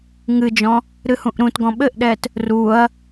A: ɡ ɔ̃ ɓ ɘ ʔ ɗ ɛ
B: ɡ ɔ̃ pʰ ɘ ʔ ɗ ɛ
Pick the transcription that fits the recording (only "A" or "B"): A